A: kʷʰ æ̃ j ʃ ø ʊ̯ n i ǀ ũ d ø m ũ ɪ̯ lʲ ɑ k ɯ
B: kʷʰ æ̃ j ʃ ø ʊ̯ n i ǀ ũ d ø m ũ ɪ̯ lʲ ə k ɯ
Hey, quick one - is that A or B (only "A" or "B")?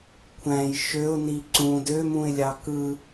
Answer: A